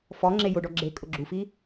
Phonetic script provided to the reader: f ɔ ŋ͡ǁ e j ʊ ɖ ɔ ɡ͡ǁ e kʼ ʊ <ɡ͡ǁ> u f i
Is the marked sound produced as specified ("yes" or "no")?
yes